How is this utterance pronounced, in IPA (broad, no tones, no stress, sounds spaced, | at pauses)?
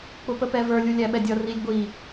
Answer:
k͡p ʊ p ə p ɛ v ə˞ lʲ u lʲ æ ɓ ɛ dʲ ʌ r i lʲ ɡʷ i